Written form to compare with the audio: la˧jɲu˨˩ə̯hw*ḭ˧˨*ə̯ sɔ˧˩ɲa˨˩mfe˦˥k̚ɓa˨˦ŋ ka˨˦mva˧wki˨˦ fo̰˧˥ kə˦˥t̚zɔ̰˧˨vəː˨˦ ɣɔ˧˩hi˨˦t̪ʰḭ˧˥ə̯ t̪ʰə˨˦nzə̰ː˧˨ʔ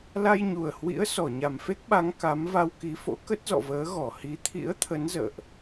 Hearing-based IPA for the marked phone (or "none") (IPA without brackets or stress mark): ḭ˧˥